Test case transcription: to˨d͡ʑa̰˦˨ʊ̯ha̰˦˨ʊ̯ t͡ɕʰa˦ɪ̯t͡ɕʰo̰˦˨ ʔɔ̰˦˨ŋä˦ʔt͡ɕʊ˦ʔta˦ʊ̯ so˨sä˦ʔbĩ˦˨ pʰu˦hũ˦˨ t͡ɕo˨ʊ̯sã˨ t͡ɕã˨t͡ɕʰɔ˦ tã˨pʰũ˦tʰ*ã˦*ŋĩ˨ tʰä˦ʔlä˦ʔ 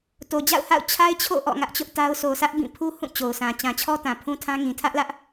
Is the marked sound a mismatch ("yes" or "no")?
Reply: no